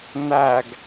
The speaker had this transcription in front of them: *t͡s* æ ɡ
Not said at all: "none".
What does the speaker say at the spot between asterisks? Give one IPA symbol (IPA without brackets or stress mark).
n